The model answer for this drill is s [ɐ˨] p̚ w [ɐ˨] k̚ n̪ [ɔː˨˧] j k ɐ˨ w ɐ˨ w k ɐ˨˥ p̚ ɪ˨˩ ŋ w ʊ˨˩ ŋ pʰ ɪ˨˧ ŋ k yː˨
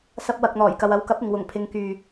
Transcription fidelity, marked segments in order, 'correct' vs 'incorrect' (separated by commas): incorrect, correct, incorrect